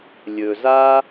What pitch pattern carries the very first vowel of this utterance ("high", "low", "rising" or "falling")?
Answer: low